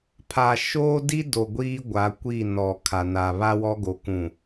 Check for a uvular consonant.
absent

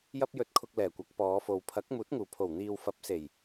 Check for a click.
absent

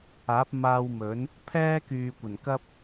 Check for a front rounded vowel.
present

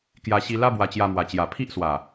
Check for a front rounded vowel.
absent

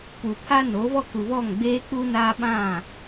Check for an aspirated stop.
present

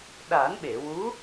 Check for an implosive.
present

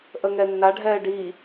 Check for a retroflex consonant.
present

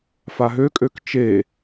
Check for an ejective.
present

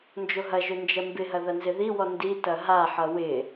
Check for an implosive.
absent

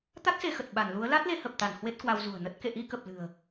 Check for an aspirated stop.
absent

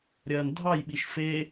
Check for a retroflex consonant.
absent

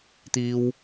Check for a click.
absent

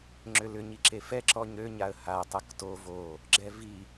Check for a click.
present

